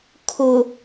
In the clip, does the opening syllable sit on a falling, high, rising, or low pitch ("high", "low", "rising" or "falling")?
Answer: low